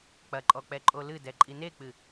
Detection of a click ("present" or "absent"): present